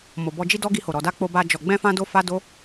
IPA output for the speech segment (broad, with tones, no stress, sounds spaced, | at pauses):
m o˨ b ɔ˧ d͡ʒ i˦ d ɔ˦ ɡ i˧ h o˨ ɾ ɔ˨ d a˧ k͡p o˦ b a˦ d͡ʒ ɔ˧ ɡ͡b ɛ̃˦ f ã˦ d o˦ f a˦ d o˦